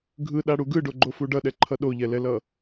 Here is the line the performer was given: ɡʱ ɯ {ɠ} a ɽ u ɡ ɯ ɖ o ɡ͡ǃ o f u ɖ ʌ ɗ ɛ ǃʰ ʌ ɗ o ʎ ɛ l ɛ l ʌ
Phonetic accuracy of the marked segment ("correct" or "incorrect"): incorrect